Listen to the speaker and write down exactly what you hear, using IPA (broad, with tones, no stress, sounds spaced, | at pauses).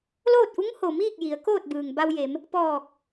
l oː˥˨ t̚ ʔ u˧˥ ŋ h o˩ m iː˥˨ k̚ j i˩˧ ə̯ k oː˥˨ t̚ b ɯː˩ ŋ b a˧ w j e˩˧ m | p ɔː˧˩ k̚